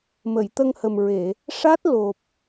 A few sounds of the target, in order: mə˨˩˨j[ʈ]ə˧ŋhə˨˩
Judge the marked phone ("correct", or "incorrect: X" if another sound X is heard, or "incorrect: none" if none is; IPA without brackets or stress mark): incorrect: t̪